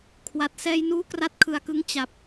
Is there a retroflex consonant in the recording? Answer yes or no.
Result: no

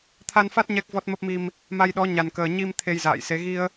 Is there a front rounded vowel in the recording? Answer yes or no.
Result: no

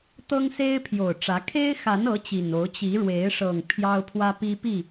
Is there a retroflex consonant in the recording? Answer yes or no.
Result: yes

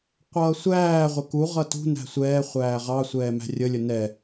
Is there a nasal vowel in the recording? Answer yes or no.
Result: no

